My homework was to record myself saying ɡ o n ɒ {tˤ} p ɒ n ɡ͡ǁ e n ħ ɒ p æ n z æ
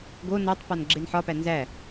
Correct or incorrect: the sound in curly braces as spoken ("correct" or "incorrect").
correct